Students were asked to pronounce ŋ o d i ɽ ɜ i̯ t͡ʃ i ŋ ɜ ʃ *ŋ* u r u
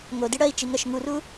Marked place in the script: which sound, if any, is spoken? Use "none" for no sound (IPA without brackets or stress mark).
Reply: ŋ